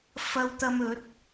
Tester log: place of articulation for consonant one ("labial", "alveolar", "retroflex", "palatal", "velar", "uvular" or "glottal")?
labial